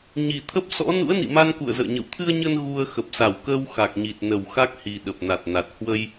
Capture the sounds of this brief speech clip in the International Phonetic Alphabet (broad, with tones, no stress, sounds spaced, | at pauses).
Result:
ɲ i˨˩ t̪ʰ ə˦˥ p̚ s ɔ̰˧˥ n ṵ˧˥ ə̯ n ḭ˧˨ m a˧ n k ṵ˧˨ ə̯ z ə̰ː˧˨ ɲ ə̰˧˨ w t̪ʰ ɨ˧ ə̯ ɲ ə˧ n ɣ u˧ ə̯ x ə˨˩ p̚ s a˧˩ w k əː˧ w x a˨˩ k̚ ɲ i˨˩ t̚ n ə˨˩ w x a˦˥ k̚ h i˨˩ ɗ ə˨˩ p̚ n a˨˩ t̚ n a˨˩ t̚ h w ə˧ j